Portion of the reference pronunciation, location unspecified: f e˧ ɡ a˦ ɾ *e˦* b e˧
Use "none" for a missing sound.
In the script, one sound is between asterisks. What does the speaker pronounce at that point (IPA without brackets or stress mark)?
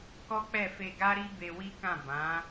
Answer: i˦